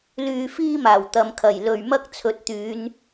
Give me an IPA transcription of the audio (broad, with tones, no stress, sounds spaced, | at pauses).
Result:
l yː˧ f iː˥ m aː˨˩ w t̪ ɐ˨ m kʰ ɐ˨˩ j l ɵ˨ ɥ m ɐ˥ k̚ t͡sʰ ɵ˨˥ t̚ t̪ yː˨˧ n